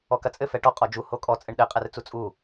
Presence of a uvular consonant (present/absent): present